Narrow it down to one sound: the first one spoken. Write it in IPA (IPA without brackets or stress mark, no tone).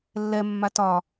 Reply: lː